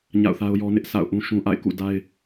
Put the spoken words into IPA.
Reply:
ɲ a̰˦˨ ʊ̯ θ a˦ ʊ̯ j ɔ˦ n ɪ˦ ʔ s a̰˦˨ ʊ̯ ʔ ũ˦ ʃ ũ˦ ʔ a̰˦˨ ɪ̯ k ṵ˦˨ d a˦ ɪ̯

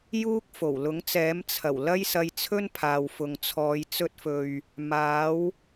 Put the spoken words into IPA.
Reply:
j uː˥ k̚ f o˨˩ w l ʊ˨˥ ŋ t͡s ɛː˨˥ m t͡sʰ ɐ˨˩ w l ɐ˥ j s ɐ˧ j t͡sʰ ɵ˥ n pʰ aː˨ w f ʊ˨ ŋ t͡sʰ ɔː˨˧ j t͡s ɵ˧ t̚ f ɵ˨ ɥ | m aː˨˥ w

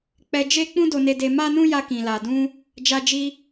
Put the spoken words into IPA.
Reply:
k͡p ɛ˧ d͡ʒ e˦ k͡p ũ˦ d o˧ n e˧ d e˧ m a˦ n ũ˦ j a˧ k ĩ˨ l a˨ d ũ˧ | d͡ʒ a˧ d͡ʒ i˧

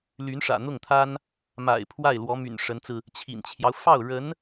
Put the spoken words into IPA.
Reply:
l y˧˥ n ʂ ä̰˨˩ n̪ ʊ˥˩ ŋ t̪ʰ a˥ n | m a̰˨˩ ɪ̯ pʰ w a˥˩ ɪ̯ l w ɔ˧˥ m y̰˨˩ n ʂ ə˧˥ n t͡s ɹ̩˧ | t͡ɕʰ ḭ˨˩ n t͡ɕʰ j ɑ˦ ʊ̯ f ɑ˥˩ ʊ̯ ɻ ə˧˥ n

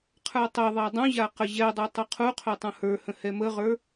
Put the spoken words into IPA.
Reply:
qʰ ə˞ tˤ ɛ ðˤ a dˤ ũ ʑ a q ə ʑ ɛ dˤ ə˞ tˤ ɵ qʰ u qʰ ɵ tˤ ũ h ə˞ h ə̃ h ɛ m ə ʁ ə˞

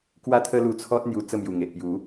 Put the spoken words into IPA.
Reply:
k w a˦ t̪ʰ ə˦ l u˧ t͡sʰ ɔ˦ t̚ n̪ j u˧ t͡s ə˥˧ m j u˨˩ ŋ e˨ ʔ p j u˨˦

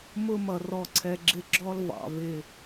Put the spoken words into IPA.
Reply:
m ʊ˦ m ʌ˨ r ɔ˦ ǀʰ ɛ˦ ɡ͡ǁ ɪ˦ ɡ͡ǁ ɔ˦ l v ɑ̰˨ v ɪ˨

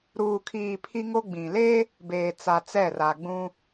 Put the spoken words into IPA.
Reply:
ɾ uː˨ kʰ iː˨ pʰ i˦ ŋ o˦ ɡ͡b ĩ˨ l e˦ | b eː˨ t͡s a˨ t͡s ɛ˦˨ r a˨ ɡ͡b ũ˦

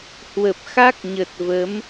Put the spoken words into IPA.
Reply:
h w ə˨˩ p̚ x a˦˥ k̚ ɲ ə˨˩ t̚ v ə˨˦ m

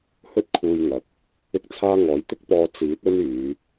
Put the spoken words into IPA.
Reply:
h ɵ˥ t̚ kʰ uː˧ j ŋ ɐ˨˥ k̚ | ɪ˥ k̚ t͡sʰ aː˥ ŋ ɔː˨˥ j t̪ ɪ˥ k̚ p ɔː˧ t͡s iː˨˥ t̚ ɵ˥ n yː˨˧

